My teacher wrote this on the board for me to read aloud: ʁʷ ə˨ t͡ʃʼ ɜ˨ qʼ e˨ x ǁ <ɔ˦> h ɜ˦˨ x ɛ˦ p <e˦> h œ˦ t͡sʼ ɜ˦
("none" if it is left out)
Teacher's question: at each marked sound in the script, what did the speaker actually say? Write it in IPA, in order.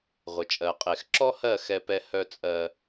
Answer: ɔ˦, ɛ˦

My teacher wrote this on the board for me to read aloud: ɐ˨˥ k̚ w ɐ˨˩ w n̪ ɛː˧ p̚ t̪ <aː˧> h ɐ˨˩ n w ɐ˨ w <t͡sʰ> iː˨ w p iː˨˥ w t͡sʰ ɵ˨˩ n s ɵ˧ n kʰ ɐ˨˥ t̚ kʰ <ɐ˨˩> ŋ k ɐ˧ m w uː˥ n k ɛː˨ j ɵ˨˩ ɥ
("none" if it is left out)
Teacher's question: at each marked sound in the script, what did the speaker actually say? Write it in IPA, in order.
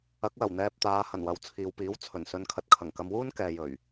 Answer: aː˨˧, t͡sʰ, ɐ˨˩

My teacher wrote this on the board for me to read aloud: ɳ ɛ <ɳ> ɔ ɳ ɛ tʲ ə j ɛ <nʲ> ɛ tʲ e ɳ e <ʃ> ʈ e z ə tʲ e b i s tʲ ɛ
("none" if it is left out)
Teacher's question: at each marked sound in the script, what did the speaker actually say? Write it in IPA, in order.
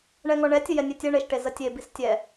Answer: ŋ, nʲ, ʃ

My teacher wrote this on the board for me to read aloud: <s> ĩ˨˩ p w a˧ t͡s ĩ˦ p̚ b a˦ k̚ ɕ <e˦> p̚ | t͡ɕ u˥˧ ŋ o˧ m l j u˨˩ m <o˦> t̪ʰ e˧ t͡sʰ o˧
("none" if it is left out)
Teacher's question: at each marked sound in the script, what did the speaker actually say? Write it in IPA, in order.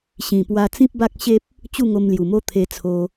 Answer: ɕ, e˦, o˦

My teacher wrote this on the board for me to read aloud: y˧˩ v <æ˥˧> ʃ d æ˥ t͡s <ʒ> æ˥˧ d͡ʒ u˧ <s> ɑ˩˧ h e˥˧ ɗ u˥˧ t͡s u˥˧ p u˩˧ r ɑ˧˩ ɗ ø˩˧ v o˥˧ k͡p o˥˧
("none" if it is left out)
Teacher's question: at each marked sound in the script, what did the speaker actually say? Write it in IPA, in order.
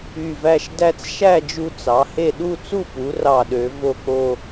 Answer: æ˥˧, ʃ, t͡s

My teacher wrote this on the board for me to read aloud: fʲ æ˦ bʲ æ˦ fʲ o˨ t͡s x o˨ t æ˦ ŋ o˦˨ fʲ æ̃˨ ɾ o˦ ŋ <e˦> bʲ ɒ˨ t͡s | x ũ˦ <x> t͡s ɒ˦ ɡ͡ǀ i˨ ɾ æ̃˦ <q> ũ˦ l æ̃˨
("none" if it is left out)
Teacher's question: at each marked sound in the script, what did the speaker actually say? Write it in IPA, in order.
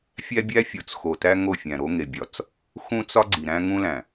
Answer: e˨, none, ŋ

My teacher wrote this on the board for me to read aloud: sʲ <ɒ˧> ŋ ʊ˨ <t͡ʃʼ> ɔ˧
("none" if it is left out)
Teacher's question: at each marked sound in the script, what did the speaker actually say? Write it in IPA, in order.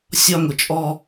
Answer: ɒ˧, t͡ʃʼ

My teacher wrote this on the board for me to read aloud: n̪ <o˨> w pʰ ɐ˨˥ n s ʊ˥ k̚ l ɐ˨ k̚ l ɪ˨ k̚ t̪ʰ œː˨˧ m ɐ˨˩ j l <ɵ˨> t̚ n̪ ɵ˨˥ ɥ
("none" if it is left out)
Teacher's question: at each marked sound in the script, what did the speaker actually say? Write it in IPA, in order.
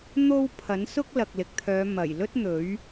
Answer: o˧, ɵ˥

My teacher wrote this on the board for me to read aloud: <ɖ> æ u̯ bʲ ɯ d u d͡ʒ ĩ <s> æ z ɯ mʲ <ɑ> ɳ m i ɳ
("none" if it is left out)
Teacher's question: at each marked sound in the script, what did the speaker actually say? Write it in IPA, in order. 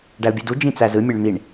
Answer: ɖ, t͡s, ɑ

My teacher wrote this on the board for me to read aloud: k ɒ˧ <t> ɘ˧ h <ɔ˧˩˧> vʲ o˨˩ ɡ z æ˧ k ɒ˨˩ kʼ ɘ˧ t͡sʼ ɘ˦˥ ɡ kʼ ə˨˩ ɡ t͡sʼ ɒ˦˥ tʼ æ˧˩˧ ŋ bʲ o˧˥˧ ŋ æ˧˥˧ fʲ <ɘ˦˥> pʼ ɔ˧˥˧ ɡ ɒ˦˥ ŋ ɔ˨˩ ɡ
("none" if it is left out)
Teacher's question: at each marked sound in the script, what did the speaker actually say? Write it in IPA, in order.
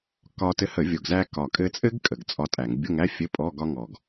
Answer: t, ə˧˩˧, ɘ˧˥˧

